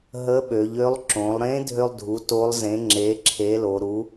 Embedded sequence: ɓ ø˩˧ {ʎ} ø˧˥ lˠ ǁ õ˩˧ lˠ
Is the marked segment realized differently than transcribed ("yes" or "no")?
no